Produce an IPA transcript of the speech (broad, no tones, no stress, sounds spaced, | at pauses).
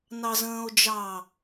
n ɑ z ə̃ː o̯ d͡ʒ ɑ